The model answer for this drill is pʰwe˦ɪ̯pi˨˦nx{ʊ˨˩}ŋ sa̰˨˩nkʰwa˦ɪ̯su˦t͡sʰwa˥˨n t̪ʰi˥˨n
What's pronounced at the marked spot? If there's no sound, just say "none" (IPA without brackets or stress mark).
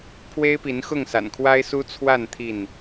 ʊ˥˨